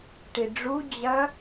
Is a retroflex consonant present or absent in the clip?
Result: present